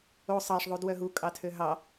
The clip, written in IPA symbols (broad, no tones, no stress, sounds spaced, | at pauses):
o sˤ ɑ ʂ ðˤ u d w œ ɦ u kʼ ɑ tʰ ø ɦ ɑ